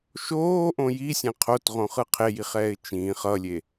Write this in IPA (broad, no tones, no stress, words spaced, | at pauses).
ʃoːʔõ jisʲɛ̃ qʰotʁõχɯ qʰejiχɛːɪ̯ t͡ʃĩːχ ʌlʲe